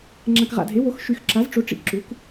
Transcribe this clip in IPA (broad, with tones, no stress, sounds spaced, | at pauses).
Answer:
ŋ͡ǁ ã˨ k ʁ a̰˨ dʱ e˩˥ w o˩˥ x ʃ y˨ x ǁ a˩˥ z ʈ͡ʂ o˩˥ ʈ͡ʂ ḭ˨ ǁ u˩˥ k